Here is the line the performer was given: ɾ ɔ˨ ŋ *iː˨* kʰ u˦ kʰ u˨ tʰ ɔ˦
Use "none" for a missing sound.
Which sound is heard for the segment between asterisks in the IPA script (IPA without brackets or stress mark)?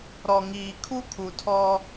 iː˨